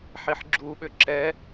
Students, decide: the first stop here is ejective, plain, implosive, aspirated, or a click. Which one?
click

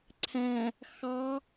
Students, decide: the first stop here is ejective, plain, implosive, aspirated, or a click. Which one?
click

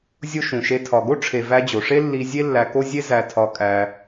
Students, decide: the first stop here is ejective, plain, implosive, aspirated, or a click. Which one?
aspirated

